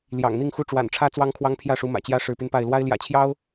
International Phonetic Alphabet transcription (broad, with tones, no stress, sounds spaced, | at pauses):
l j ɑ̰˨˩ ŋ n̪ i˥˨ ŋ x u˥˨ ʈ͡ʂ w a̰˨˩ n ʈ͡ʂʰ ä˦ t͡s w ɑ˦ ŋ kʰ w ɑ˦ ŋ pʰ j ä˥˨ ʂ u˨˦ m ä̰˨˩ t͡ɕ j ä˦ ʂ ɻ̩˨˦ p y˧ n p a˥˨ ɪ̯ l w a˦ ɪ̯ l j ä̰˨˩ t͡ɕʰ j ɑ˦ ʊ̯